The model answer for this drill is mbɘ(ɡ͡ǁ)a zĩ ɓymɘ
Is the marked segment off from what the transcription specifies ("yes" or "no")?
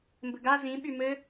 yes